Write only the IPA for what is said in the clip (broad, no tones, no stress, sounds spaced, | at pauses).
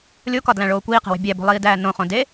lʲ o k ɒ d l æ̃ ɭ oː kʷ iː q e̤ w e̤ bʲ æ b o̤ lˠ iː d æː n õ χ õ d e